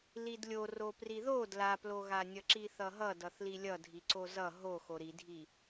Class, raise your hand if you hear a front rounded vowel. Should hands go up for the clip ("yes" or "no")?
no